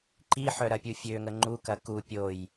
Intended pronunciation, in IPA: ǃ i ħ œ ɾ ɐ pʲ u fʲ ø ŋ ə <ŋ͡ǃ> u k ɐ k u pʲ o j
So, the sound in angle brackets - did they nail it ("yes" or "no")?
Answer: yes